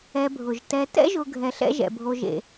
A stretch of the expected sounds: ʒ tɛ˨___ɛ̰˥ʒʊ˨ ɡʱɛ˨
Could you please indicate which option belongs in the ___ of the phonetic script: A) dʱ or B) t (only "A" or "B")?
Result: B